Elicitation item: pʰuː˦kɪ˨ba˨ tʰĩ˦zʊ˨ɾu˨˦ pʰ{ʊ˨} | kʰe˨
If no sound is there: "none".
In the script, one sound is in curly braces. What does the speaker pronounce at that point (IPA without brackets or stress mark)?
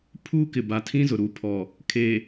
ɔ˨